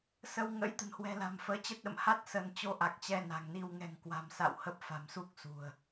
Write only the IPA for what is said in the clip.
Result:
s ə˧ w ŋ ə̰˧˥ j t̪ ə̤˨˩ n h w ɛ̤˨˩ l a̤˨˩ m f əː˨˦ t͡ɕ ə˦˥ t̚ ɗ ə̰˧˨ m h a˦˥ t̚ s ə˧ n t͡ɕ o˧ ʔ a˨˩ k̚ t͡ɕ ɛ˧ n a̤˨˩ ŋ n i˧ w ŋ ɛ̤˨˩ ŋ k w a̤˨˩ m s a̰˧˨ w h ə˦˥ p̚ f a̤˨˩ m s u˦˥ k̚ s ṳ˨˩ ə̯

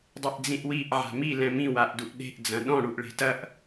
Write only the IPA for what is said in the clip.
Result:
dˤ e ʔ d͡z ĩ ʔ w i ʔ ʕ a̤ m i l ɛ̃ m ĩ w a ʔ d u ʔ ɗ e̤ ʔ d͡z ɐ̃ ɗ ɔ̃ ɽ u ʔ ɭ e̤ t ɐ ʔ

